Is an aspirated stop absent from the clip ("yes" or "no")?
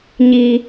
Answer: yes